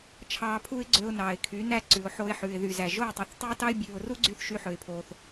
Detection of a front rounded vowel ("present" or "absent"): present